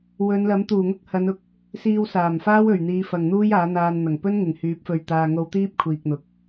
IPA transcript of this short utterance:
w ɵ˨˧ n l ɐ˨˥ m t̪ uː˨˩ ŋ ʊ˥ k̚ h ɐ˨˧ n ʊ˨˥ k̚ | s iː˧ w s aː˨˩ m f aː˥ w ɵ˨˩ ɥ n̪ iː˨˧ f ɐ˨ ŋ n̪ uː˥ j aː˨˥ n̪ aː˧ n n̪ ɐ˨˩ ŋ p ɵ˥ n ŋ ɪ˨˩ ŋ h yː˨˥ p̚ f ɵ˨ ɥ t̪ aː˨ ŋ o˧ w t̪ iː˥ p̚ kʷʰ iː˨ k̚ n̪ ʊ˨ k̚

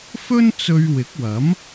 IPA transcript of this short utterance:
f ɵ˥ n t͡s ɵ˧ ɥ w ɪ˨˥ k̚ w ɐ˨˥ m

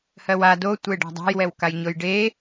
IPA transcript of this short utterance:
h ɜ w a d o tʷ e ɖ a̤ dˤ a̤ j w ɛ w k a j ɲ o j ɖ e

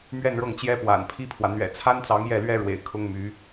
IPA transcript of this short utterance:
m ɥ ɛ˥˧ n ɻ ɤ˥˩ ŋ t͡ɕ j ɛ˥ p w a̰˨˩ n pʰ i˥ pʰ w ä˨ n̪ ɥ ɛ̰˨˩ t͡sʰ a˥ n t͡s ɑ˧˥ ŋ j ɛ˥˩ l ɥ ɛ˥ ɻ w ḛ˨˩ ɪ̯ kʰ ʊ˥ ŋ m y˧˥

